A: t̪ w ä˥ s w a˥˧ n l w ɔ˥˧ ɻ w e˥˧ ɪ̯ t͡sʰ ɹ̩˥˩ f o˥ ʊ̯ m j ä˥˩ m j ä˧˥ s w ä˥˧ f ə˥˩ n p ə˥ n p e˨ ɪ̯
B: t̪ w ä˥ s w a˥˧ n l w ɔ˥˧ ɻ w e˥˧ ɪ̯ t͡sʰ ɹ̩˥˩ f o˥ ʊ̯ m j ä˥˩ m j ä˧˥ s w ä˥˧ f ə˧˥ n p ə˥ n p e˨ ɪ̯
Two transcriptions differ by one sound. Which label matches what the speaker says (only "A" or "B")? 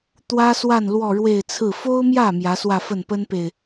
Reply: A